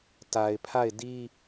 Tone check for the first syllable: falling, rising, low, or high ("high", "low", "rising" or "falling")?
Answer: low